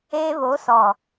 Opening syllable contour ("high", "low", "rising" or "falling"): high